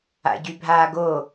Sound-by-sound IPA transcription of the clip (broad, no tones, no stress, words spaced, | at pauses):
a̰ɟybʱaːɡo